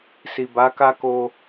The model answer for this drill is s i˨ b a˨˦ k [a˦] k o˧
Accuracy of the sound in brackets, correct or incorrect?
correct